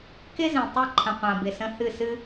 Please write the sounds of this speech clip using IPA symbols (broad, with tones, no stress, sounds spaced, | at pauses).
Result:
k ɪ˦ z ẽ˨ tˤ e˦˨ ǃʰ ə̃˨ qʷ ã˨ b ɪ˨ s ə̃˨ h ɨ˦˨ s ɨ˦